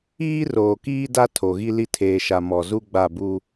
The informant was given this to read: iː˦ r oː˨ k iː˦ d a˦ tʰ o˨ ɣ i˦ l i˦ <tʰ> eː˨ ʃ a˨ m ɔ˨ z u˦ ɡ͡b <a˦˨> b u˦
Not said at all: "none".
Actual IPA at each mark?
tʰ, a˦˨

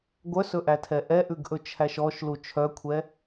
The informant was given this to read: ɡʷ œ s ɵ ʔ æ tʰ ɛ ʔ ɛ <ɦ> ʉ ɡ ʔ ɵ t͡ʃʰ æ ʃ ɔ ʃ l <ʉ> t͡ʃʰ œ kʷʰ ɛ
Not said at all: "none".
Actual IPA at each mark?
ʔ, u

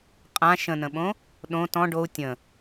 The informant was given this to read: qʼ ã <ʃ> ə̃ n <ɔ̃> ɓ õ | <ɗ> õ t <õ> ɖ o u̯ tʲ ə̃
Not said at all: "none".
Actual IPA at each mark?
ʃ, ə̃, ɗ, ɔ̃

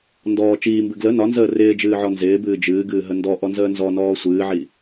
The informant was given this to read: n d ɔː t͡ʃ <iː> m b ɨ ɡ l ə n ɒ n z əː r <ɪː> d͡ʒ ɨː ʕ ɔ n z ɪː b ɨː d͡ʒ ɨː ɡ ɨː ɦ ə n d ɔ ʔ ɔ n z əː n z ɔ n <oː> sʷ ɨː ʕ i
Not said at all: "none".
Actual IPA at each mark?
iː, ɪː, ɔː

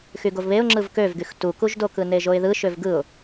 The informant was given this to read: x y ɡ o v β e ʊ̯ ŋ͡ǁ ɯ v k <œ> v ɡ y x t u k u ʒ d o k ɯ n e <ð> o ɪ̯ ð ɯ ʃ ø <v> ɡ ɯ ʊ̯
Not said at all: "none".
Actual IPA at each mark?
ø, ʒ, v

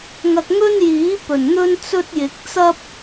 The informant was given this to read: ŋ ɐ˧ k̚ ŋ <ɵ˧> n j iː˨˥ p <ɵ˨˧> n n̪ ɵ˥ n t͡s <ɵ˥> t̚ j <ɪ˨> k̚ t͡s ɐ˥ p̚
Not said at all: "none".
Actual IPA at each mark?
ɵ˥, ɵ˨˩, ɵ˥, ɪ˨˥

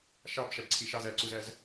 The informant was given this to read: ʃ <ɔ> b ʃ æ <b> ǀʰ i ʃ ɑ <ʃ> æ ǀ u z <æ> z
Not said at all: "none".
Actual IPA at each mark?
ɑ, b, z, æ

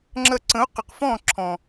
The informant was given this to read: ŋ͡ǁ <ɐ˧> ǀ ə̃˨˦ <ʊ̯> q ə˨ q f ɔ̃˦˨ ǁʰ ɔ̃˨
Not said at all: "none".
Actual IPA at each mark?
ɐ˧, ʊ̯

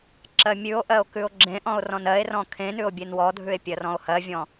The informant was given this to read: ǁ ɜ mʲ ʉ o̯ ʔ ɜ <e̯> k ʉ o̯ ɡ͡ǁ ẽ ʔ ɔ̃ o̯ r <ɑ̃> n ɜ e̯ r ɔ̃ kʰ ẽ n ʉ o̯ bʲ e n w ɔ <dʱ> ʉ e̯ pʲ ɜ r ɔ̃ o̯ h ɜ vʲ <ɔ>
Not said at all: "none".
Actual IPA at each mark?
o̯, ɔ̃, dʱ, ɔ̃

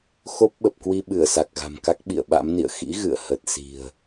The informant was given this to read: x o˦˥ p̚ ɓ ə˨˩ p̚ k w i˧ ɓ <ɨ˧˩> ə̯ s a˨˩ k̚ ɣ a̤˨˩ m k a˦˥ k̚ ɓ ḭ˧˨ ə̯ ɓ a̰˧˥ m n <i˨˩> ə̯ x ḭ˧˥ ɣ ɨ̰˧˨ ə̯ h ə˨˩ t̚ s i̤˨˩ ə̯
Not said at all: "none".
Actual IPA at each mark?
ɨ˧˩, ḭ˧˨

